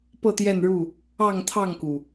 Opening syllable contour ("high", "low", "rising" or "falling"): falling